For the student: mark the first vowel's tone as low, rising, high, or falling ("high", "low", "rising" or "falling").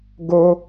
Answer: high